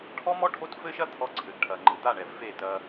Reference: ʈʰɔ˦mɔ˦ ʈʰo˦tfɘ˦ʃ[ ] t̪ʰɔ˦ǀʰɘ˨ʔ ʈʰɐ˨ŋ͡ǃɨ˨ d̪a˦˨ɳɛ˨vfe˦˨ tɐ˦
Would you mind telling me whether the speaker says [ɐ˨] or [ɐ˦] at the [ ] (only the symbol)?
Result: ɐ˦